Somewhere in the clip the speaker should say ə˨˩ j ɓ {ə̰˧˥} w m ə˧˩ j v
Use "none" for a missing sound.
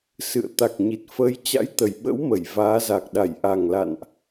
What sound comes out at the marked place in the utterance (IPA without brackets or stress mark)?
ə̰˧˥